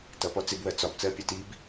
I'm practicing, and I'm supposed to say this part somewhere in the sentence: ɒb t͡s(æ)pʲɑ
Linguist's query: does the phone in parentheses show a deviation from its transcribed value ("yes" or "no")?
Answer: yes